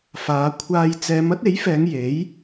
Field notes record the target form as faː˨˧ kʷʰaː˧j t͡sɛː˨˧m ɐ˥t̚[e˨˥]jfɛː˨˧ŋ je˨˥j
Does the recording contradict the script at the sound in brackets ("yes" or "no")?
no